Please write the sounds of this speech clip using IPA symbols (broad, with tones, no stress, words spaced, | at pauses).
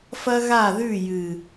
fɐ˦ɣa˦˨ðʉ˦˨ jɨ˨